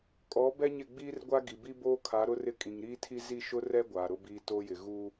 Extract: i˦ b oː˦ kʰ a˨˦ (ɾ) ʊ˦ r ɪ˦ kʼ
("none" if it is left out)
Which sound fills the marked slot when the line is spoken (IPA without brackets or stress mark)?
ɾ